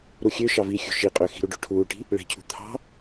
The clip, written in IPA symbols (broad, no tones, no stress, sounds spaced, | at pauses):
ɾ u xʲ ø ʃ ɑ v i xʲ ṳ ʃ i qʼ ø x i̤ ɾ u ɖ o ʈʰ uː ʈ i̤ | ɭ e̤ cʰ ṳ t̪ʰ ɑ̤